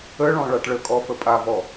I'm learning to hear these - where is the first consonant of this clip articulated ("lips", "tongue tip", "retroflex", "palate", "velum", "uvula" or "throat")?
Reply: retroflex